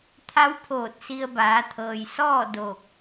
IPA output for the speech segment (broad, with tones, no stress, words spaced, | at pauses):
t̪ʰa˧˥wpʰoː˧˩t̚ si˧ə̯baː˩˧t̪ʰɤː˩j sɔː˥˨ doː˧˩k̚